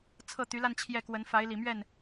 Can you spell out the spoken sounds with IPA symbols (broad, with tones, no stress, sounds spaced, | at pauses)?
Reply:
t͡sʰ ɤ˥˩ t̪ y˧˥ l a˥˧ n t͡ɕʰ j ɛ˥˩ k w ə˧˥ n f a˧˥ ɪ̯ l i˨˩ m ɥ ɛ˥˩ n